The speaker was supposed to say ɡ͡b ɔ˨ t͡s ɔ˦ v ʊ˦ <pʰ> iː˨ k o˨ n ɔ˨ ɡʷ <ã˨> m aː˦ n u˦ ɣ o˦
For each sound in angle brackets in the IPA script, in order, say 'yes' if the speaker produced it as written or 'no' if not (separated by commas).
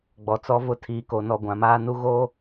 no, yes